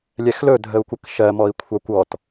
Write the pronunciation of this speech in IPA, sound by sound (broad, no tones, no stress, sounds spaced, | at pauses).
lʲ ɛ x l ɵ dʱ ə u̯ kʷ ə k ʃ ɜ m ɔ i̯ kʷʰ ɑ kʷ ɔ t